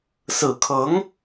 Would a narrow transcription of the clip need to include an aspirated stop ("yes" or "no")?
yes